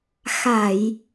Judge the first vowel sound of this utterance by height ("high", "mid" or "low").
low